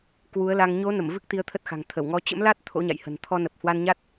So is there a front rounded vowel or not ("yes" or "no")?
no